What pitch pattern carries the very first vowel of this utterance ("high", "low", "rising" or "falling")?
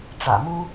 low